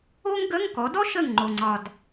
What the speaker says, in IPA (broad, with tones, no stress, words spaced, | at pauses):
o˥ŋɡə˧˥˧ŋ kɔ˩˥ dɔ˥ʃə˧˩ŋŋ͡ǃo˩ŋ͡ǀɒ˩d